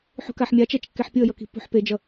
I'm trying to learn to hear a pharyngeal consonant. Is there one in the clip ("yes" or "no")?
yes